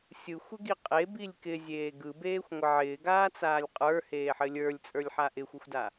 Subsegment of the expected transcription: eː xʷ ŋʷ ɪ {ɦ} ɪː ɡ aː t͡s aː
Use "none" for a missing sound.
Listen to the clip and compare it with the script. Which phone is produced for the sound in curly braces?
ʕ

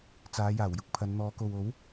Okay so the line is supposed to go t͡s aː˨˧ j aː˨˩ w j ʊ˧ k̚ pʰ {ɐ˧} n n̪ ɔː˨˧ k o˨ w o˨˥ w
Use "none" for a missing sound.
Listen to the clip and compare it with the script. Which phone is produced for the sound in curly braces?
ɐ˨˧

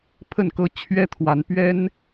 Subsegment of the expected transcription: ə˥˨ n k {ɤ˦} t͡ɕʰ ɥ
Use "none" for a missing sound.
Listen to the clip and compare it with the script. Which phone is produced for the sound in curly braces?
ɤ˦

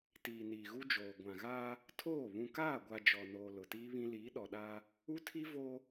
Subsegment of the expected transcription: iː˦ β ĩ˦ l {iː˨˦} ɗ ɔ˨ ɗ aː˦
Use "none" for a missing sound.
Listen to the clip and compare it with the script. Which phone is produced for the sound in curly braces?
iː˨˦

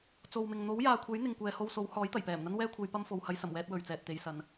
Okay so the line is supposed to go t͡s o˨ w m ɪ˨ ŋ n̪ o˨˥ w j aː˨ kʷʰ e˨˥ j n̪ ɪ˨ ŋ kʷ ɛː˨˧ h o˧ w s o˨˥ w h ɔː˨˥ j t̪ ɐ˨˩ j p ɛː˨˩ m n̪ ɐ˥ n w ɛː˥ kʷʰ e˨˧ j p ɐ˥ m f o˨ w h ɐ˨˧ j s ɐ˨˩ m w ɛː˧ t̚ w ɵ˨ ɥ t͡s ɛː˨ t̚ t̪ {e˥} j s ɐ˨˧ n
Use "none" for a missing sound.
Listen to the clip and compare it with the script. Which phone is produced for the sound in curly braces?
e˨˧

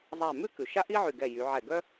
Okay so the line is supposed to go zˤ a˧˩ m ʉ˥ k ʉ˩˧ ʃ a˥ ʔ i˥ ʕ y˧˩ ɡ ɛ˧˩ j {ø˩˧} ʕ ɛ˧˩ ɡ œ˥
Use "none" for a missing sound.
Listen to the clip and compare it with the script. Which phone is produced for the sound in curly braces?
y˩˧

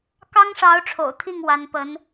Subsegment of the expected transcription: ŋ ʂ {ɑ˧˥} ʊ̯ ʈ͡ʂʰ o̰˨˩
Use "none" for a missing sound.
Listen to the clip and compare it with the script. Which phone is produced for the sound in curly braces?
ɑ˧˥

